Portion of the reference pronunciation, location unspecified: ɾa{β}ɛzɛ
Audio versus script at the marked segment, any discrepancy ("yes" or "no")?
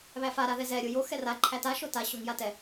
yes